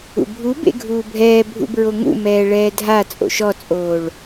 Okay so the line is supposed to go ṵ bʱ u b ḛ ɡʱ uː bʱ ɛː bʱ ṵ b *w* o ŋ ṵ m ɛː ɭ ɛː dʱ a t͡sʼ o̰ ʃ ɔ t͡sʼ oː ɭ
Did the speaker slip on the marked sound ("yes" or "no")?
yes